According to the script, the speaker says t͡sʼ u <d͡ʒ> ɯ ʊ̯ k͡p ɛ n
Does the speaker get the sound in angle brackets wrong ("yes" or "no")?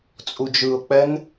no